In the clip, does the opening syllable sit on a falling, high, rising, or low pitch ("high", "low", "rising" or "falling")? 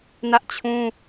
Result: high